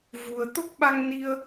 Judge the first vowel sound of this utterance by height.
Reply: high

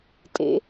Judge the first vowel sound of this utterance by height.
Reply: mid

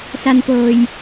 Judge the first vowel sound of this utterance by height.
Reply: low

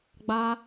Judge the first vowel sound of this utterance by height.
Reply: low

